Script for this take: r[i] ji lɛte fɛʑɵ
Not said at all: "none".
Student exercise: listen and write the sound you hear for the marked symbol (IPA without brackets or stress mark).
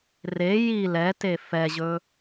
e